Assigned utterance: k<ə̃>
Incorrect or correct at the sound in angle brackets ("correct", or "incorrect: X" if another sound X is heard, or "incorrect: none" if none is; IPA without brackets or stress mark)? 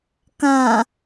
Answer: incorrect: ã